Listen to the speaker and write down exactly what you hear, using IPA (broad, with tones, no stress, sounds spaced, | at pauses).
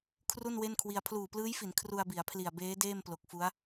kʰ r u˥˩ n w e˥˩ n kʰ w i˧ a̯ pʰ l uː˨˩ p l ɯː˦˥ j f i˩˦ n kʰ r u˧ a̯ b i˩˦ a̯ pʰ l i˨˩ a̯ b eː˦˥ d eː˥˩ m p l o˨˩ k̚ f u˦˥ a̯